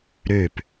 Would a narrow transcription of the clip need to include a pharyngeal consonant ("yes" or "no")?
no